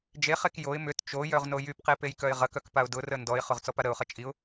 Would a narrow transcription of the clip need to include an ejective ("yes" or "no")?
yes